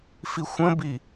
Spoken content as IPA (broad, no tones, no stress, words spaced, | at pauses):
fixʷə̃bi